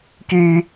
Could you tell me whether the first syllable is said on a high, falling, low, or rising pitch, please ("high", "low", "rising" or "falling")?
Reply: high